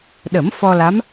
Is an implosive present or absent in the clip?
present